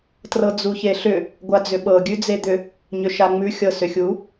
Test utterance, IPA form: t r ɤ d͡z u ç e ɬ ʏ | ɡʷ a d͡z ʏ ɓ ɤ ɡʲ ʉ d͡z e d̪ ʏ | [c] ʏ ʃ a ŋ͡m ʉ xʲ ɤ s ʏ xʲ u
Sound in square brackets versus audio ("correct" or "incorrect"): incorrect